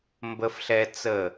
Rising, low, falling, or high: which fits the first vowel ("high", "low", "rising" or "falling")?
high